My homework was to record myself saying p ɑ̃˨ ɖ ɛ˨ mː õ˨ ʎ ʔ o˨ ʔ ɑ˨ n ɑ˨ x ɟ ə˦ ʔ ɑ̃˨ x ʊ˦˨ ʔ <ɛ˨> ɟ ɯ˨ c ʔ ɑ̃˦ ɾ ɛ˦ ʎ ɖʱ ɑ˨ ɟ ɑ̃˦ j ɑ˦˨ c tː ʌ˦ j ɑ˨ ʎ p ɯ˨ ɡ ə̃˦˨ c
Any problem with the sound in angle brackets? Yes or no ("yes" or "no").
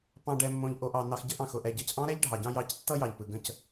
no